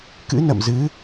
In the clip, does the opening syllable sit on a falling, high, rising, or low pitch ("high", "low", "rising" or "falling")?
rising